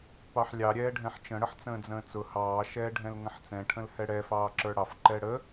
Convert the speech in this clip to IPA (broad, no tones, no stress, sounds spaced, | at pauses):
p ɑ ħ lʲ ɑ ɾʲ ɛː ɖʱ ɛ̃ ħ t͡ʃ ə̃ ɽ ə ħ t͡s ə̃ː d͡z ə̃ː t͡s ʊ h ɑː ʃ ɛː ɖʱ ɛ̃ l ŋ ə̃ ħ t͡s ɛ̃ ʈʰ ə̃ l h ɛ ɽ ɛ f ɑː ǁ ə˞ ɽ ɑ f ǃ ɛ ɽ ə